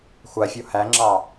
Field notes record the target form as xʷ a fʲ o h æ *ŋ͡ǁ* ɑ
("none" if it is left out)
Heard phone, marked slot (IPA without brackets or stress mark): ŋ͡ǁ